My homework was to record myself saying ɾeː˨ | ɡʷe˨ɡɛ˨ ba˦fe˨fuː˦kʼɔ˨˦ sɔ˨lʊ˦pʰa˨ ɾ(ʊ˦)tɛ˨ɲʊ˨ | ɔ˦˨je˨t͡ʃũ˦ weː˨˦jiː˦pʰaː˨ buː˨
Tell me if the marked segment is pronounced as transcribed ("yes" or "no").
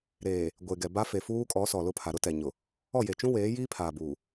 yes